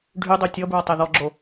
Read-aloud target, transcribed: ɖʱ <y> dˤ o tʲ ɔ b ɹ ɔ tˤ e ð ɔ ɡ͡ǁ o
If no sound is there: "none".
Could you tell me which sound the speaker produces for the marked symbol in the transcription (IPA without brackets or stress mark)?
y